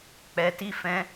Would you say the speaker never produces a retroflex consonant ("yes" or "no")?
yes